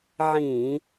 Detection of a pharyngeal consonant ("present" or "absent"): present